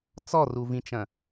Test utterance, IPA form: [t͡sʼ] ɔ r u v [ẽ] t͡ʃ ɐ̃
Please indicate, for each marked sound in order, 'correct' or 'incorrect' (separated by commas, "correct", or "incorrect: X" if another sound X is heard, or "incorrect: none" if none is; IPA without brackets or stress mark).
incorrect: t͡s, incorrect: ĩ